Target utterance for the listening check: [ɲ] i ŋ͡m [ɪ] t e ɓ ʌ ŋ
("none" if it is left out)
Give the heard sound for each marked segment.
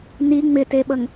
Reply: n, ɪ

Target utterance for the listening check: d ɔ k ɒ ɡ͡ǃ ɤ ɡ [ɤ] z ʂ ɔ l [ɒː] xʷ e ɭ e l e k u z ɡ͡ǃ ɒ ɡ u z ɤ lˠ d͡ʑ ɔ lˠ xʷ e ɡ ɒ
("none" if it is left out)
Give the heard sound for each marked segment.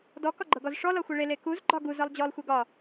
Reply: ɔ, ɒ

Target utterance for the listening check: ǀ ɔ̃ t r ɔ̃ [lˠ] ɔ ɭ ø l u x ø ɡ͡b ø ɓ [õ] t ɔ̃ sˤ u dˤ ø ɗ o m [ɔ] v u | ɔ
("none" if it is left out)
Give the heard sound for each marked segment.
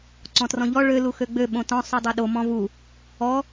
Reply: ʎ, õ, ɔ̃

